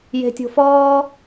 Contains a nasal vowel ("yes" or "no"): no